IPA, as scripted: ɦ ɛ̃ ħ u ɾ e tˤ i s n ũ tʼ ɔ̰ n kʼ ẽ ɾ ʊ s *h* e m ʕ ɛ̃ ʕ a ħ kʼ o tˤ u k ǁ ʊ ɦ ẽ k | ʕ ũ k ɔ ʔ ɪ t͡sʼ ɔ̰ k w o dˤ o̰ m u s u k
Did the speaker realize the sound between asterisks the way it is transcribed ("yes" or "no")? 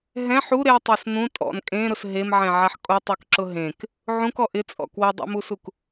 no